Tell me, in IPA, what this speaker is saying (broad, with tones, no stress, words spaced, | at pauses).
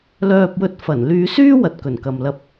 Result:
lœː˧p̚wɵ˧t̚ fɐ˨˩n lyː˧syː˥wɐ˨t̚ kɵ˨˩nkɐ˨mlɐ˧p̚